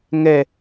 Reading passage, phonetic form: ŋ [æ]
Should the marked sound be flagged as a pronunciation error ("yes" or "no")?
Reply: yes